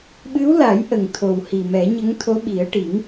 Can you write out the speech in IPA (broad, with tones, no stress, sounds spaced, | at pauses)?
ɓ ɨ˧˥ w l a˨˩˦ j ʔ ə˨˩ ŋ t̪ʰ o˨˩ w h i˨˩ m ɛ˨˩˦ ɲ ə˧˥ ŋ t̪ʰ o˧˥ ɓ i˨˩˦ ə̯ ʈ i˨˩˦ ŋ